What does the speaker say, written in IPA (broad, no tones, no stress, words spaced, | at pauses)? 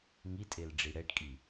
ŋitʼel ɖ͡ʐiɽɛʈkʼi